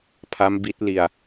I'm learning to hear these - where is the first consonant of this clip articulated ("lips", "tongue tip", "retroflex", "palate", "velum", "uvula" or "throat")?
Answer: lips